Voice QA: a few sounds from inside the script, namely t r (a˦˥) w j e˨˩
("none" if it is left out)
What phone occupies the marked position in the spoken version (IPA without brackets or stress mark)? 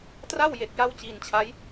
a˥˩